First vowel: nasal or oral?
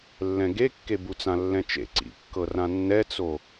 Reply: nasal